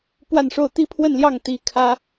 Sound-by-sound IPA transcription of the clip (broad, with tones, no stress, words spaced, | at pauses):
pwa˥˧nʂo˥˩ʊ̯ t̪i˥pʰwə˥˧nljɑ˥˩ŋ t̪i˧˥ kʰä˥